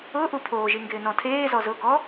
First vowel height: high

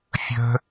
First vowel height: mid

